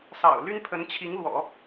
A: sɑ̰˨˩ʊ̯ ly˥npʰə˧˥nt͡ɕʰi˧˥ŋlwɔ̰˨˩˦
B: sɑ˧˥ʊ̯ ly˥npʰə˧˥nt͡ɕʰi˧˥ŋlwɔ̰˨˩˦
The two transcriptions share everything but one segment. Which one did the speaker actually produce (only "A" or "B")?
A